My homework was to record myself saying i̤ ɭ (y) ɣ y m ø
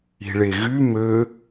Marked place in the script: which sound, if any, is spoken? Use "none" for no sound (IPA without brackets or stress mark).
e